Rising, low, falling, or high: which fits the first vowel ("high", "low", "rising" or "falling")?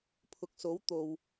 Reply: low